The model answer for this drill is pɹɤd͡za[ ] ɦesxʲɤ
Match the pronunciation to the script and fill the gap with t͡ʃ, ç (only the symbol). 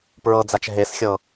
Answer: t͡ʃ